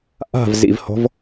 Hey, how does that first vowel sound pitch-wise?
falling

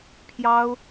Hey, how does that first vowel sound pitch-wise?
high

